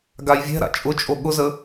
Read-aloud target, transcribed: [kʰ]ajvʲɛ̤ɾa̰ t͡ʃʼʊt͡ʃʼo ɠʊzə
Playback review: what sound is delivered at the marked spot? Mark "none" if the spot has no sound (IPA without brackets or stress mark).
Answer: ɡ